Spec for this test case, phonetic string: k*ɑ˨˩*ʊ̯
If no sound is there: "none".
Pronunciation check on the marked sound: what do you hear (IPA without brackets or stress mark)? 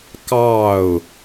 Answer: ɑ˥˨